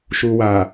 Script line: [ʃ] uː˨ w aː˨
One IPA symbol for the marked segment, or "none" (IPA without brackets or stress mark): ʃ